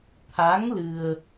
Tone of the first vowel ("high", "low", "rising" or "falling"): rising